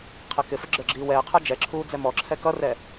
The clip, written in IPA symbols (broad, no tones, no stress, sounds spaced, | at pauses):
qʰ ɛ k ɪ f ə ɡ͡ǁ ə˞ ɡ͡ǁ iː w ɛː qʰ ə˞ d͡ʒ ɛ ǁʰ uː d͡z ɛ m ɔ ǁʰ ɛ k ʌ r ɛ